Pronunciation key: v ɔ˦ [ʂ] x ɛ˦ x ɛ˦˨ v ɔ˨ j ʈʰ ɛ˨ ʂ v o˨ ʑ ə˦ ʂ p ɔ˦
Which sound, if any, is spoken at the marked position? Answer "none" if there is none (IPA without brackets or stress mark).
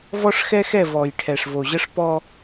ʂ